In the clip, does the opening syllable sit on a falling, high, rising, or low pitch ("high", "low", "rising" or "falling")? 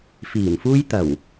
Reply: low